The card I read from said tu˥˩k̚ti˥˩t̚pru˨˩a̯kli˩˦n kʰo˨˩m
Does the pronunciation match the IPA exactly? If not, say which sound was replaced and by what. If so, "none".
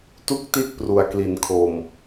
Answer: none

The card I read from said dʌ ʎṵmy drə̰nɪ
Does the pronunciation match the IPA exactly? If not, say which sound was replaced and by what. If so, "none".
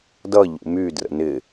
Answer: none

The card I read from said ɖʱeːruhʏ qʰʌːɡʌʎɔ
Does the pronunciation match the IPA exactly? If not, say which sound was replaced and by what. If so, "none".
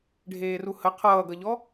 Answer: ʏ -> ə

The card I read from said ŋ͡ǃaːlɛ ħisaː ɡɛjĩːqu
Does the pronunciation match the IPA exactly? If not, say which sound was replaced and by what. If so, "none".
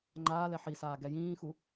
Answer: q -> x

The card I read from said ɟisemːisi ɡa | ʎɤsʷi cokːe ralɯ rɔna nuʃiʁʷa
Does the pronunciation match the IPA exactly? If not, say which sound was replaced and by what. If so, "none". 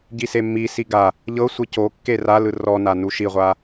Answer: none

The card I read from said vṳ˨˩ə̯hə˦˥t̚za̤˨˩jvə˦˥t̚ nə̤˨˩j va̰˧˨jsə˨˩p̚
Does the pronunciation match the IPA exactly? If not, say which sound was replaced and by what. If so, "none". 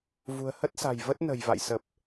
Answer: z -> s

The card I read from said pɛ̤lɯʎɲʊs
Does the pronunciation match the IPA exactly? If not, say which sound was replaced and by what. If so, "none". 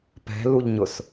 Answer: ɯ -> u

